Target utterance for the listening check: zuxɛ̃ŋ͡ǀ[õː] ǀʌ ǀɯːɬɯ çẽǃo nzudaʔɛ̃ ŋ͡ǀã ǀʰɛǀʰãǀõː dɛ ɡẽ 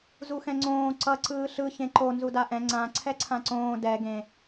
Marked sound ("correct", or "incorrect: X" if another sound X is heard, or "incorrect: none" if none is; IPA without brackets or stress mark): correct